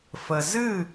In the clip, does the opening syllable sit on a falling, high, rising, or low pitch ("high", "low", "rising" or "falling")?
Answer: low